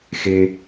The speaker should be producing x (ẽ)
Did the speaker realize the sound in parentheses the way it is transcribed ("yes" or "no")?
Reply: no